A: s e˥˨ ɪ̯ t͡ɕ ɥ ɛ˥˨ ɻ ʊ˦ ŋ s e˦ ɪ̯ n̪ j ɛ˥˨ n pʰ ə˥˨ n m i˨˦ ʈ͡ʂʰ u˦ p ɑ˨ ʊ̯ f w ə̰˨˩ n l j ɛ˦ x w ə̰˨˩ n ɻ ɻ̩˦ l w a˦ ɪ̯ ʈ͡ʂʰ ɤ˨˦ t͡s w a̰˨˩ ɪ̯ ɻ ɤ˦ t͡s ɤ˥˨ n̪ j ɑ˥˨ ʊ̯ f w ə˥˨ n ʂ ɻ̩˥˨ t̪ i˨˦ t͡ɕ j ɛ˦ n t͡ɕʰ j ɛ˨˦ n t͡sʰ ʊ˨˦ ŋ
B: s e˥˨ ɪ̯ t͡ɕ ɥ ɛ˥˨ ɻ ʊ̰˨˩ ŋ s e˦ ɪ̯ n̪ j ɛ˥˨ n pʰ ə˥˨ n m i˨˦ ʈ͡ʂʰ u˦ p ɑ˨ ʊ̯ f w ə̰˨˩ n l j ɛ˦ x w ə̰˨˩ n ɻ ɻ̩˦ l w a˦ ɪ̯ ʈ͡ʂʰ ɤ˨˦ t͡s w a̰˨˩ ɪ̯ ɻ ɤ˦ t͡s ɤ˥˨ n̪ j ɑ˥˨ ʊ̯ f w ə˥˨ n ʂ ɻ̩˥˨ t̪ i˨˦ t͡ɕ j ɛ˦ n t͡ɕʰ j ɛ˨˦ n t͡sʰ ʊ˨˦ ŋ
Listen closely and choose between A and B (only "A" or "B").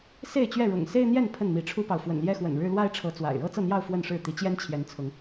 B